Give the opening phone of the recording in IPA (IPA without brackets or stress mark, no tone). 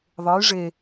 ðˤ